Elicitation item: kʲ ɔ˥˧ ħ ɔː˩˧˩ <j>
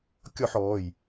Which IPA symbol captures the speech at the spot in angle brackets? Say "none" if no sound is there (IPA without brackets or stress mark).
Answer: j